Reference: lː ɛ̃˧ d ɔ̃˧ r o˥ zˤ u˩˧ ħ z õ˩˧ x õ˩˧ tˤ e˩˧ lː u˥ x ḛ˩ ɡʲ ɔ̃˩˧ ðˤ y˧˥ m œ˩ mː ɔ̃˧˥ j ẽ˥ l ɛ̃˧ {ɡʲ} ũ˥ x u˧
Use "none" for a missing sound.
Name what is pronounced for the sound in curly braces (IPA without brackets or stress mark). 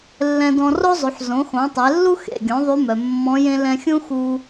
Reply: xʲ